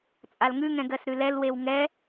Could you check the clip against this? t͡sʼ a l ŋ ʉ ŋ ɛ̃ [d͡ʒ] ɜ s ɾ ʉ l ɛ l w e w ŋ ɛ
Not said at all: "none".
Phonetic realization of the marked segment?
ɡ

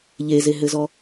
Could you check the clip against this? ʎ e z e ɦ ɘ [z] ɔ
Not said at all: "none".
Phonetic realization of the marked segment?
z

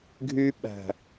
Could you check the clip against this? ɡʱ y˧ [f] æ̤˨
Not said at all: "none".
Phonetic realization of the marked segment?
ɓ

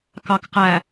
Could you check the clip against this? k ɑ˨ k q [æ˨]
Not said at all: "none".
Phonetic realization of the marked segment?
æ˨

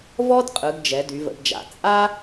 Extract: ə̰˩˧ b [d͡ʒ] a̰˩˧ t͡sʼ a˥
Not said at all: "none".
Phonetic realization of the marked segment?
d͡ʒ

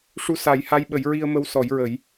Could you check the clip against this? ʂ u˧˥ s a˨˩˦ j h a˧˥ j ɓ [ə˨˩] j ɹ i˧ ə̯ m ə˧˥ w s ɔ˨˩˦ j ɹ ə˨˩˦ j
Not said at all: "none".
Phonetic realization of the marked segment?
ə˨˩˦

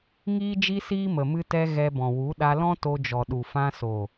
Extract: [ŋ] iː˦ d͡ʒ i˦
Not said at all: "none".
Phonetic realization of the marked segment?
ŋ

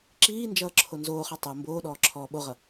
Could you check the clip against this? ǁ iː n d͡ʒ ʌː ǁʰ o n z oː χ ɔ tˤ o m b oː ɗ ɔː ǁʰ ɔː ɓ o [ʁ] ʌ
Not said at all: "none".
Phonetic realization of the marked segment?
ʁ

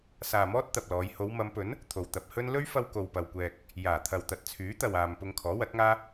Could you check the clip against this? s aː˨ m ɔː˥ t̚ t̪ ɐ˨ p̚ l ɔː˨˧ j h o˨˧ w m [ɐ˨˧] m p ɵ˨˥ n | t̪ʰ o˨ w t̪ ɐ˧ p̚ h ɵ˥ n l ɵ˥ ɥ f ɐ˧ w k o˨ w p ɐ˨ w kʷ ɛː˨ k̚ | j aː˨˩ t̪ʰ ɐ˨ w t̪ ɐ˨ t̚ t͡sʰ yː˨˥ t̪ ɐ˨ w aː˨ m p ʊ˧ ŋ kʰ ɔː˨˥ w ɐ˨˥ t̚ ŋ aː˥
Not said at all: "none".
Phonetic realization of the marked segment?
ɐ˨˧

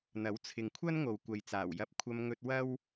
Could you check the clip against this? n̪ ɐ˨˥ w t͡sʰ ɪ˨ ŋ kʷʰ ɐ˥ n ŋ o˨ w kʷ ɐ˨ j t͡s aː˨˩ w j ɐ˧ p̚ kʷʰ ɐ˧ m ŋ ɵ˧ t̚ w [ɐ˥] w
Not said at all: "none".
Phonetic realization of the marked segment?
ɐ˥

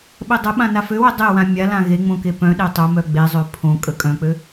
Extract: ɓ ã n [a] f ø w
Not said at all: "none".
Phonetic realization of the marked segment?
a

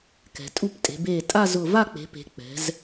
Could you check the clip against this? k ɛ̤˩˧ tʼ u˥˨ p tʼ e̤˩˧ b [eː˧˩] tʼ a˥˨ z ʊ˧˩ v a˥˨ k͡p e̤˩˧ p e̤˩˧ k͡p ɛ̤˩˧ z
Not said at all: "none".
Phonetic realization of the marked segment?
eː˧˩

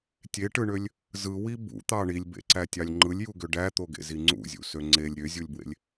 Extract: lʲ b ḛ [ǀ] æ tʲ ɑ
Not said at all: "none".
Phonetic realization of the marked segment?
ǀ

